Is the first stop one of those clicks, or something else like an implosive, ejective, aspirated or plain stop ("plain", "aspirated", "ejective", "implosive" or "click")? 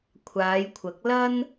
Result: aspirated